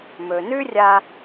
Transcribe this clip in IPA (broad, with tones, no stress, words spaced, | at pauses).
mɵ˨nʉ˦rʲa˧